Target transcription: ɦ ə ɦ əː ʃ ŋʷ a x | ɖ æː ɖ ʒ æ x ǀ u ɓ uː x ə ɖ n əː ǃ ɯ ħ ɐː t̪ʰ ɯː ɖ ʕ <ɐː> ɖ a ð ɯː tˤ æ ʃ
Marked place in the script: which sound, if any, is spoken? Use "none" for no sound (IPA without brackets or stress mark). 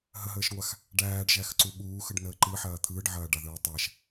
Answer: ɐː